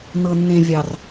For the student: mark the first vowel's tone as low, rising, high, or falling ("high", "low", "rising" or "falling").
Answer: low